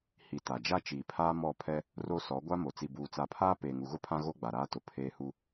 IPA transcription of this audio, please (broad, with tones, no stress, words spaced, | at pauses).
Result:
hi˨ ta˨ d͡ʒa˦t͡ʃiː˨pʰaː˦ mɔ˦˨pʰɛ˦ | ro˦sɔ˨˦ ɡʷa˦mo˨ t͡si˨buː˨t͡sa˨pʰaː˦ peː˨ŋu˨ɣʊ˦pʰã˦ ɣo˦ɡ͡ba˨ɾaː˦tʊ˨ pʰeː˦hu˦